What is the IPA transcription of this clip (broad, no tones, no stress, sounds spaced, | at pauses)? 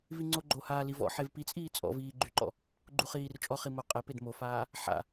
v i ŋ͡ǀ o ɡ͡ǃ o h aː l i v ɔ̰ ħ e v p i t͡sʼ iː t͡sʼ ɔ̰ v iː ɡ͡ǃ y ǃ ɔ̰ | ɡ͡ǃ u χ iː r t͡ʃʼ ɔ χ i m o qʼ ɛ p e d m o f aː | ħ a̰